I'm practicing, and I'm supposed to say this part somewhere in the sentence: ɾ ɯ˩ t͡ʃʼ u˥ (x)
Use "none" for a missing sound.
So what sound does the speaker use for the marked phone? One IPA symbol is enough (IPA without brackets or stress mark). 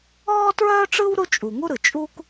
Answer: k